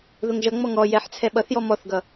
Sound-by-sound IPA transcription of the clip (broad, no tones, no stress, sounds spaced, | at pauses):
ð ʊ ŋ ʒ ʌ ŋ͡m ɔ ŋ ɔ j ɛ ħ t͡sʰ ɛ ɓ ʌ θ j ɔ m ɔ θ ɡ ʌ